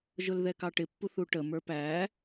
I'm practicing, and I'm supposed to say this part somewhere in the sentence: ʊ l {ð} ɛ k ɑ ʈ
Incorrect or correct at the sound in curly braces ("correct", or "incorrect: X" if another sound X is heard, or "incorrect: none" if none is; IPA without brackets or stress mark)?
correct